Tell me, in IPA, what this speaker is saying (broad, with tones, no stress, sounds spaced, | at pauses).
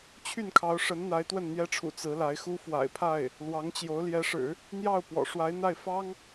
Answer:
t͡ɕʰ y˥˩ n kʰ ɑ˧˥ ʊ̯ ʂ ə˧˥ n n̪ a˧˥ ɪ̯ t̪ w ə˥˩ n n̪ j ɛ˥ ʈ͡ʂʰ ṵ˨˩ t͡s ɹ̩˧˥ l a˧˥ ɪ̯ x u˥ f w a̰˨˩ ɪ̯ pʰ a˥˩ ɪ̯ | l w ɑ˧˥ ŋ t͡ɕ j o˧˥ ʊ̯ l j ɛ˧˥ ʂ ɻ̩˨˩˦ | n̪ j ɑ˥˩ ʊ̯ p w ɔ̰˨˩ ʂ w a˧˥ ɪ̯ n̪ a˥˩ ɪ̯ f ɑ˥ ŋ